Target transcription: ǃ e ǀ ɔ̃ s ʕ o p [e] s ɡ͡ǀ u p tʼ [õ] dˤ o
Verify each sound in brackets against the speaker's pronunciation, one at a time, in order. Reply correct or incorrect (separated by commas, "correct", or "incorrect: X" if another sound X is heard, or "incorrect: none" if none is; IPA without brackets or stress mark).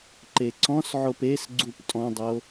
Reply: correct, incorrect: ɔ̃